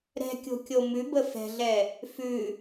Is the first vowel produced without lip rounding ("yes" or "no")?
yes